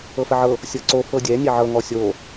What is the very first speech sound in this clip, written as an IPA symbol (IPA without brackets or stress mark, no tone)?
ɤ